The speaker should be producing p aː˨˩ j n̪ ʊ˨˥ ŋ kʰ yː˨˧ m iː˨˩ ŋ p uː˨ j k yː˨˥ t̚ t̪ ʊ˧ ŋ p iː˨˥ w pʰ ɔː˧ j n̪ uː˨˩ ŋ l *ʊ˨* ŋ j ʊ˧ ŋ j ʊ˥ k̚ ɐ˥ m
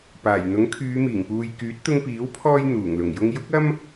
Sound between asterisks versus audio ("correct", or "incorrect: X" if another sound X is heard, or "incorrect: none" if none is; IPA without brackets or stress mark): incorrect: ʊ˨˩